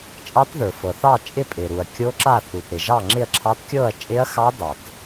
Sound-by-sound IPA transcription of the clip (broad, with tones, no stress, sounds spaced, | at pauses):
t͡ʃʼ ɑ˦˥ t ð ə˞˨ f ɤ˨ θ ɑ˥˨ t͡ʃʼ ɪ˥˨ pʼ ɪ˨ ɾ u˨ ɐ̯ kʲ o˦˥ ǁ a˥˨ θ u˨ t ɾ ɪ˨ ʒ ɑ˥˨ ŋ͡ǁ ɪ˥˨ ɐ̯ ǁʰ ɑ˦˥ t kʲ ɤ˥˨ ɐ̯ t͡ʃʼ ɪ˦˥ ɐ̯ x ɑ˦˥ d ɑ˨ t